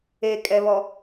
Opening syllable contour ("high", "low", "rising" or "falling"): low